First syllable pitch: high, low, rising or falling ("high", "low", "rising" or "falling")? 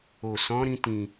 low